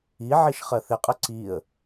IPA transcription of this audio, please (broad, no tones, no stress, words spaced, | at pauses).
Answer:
i ʕiʃχɜθɪqʼə ǀiə̯